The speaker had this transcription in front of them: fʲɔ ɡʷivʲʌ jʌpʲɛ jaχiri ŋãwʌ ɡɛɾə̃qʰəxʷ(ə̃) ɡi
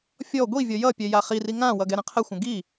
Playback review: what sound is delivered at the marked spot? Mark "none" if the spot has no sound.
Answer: ə̃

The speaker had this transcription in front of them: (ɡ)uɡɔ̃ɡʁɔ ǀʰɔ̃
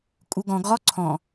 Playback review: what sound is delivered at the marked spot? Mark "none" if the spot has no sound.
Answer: kʼ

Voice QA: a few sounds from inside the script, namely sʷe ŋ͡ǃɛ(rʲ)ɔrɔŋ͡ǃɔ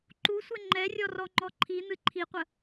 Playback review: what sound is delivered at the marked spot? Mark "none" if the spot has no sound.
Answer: rʲ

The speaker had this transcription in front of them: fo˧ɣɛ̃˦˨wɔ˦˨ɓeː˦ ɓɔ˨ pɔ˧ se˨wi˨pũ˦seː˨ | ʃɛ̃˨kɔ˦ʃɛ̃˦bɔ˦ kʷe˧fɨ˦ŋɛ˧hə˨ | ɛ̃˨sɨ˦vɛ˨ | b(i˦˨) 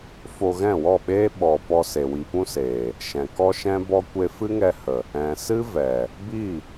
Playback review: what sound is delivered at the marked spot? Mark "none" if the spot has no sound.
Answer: i˦˨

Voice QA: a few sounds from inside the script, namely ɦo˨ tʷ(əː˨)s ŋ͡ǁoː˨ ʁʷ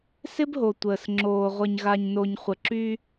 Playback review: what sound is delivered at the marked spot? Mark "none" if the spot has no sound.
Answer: əː˨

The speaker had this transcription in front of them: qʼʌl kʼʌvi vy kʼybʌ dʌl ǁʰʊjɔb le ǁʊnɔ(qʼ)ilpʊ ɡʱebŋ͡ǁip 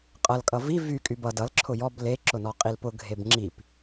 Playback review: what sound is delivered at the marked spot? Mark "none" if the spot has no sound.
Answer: qʼ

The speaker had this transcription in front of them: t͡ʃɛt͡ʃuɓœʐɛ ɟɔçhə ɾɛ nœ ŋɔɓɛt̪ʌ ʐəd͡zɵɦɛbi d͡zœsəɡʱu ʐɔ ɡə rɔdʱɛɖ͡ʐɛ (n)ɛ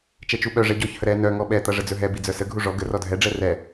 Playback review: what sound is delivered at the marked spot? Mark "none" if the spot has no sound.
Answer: r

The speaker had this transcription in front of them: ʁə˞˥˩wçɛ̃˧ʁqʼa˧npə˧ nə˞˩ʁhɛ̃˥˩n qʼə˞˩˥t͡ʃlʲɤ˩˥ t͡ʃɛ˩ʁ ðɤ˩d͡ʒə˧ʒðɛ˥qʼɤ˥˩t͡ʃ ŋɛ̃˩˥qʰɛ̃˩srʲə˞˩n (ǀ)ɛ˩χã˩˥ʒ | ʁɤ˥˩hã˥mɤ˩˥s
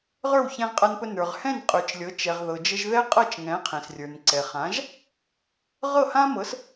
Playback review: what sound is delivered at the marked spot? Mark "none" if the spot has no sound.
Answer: ǀ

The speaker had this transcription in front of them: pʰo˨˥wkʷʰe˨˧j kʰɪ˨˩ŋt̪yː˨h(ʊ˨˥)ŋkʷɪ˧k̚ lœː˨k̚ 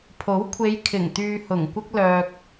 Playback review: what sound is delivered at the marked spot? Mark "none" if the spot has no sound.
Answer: ʊ˨˩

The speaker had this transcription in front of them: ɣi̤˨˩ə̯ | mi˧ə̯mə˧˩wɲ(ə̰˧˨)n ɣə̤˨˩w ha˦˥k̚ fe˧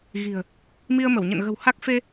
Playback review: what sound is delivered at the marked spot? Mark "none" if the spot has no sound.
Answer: ə̰˧˨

